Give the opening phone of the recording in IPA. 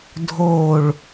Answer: dʱ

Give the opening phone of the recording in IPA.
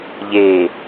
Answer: ʎ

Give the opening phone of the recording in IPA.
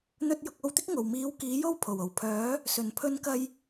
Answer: n̪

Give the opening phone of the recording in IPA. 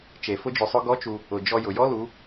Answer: t͡ʃ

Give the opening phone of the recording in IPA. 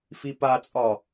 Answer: f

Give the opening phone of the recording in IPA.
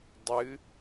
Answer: dˤ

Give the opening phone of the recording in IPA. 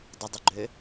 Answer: dˤ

